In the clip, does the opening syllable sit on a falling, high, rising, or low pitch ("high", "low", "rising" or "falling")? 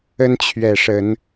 high